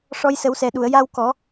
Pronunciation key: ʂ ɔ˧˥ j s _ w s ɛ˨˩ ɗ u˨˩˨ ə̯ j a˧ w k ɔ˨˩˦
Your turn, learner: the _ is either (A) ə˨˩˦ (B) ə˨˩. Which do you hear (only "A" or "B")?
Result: A